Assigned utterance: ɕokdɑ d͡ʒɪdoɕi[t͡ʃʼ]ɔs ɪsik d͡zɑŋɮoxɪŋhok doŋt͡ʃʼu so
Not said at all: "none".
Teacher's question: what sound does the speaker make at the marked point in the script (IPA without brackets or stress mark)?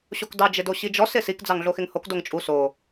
d͡ʒ